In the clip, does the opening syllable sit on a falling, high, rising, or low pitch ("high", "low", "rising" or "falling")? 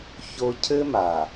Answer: high